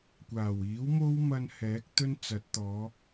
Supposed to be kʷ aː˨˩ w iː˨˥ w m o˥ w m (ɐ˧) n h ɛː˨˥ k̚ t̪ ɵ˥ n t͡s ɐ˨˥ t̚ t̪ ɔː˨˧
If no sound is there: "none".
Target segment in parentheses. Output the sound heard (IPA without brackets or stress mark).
ɐ˧